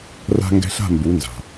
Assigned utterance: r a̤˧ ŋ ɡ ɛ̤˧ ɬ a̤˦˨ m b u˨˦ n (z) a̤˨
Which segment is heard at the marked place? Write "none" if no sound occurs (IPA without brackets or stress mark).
z